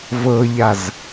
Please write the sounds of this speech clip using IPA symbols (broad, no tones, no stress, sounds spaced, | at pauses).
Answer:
v ɤ ʎ a z